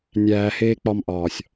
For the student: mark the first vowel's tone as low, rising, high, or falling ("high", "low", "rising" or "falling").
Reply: low